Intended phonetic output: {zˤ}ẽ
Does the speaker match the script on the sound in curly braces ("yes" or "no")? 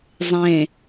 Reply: yes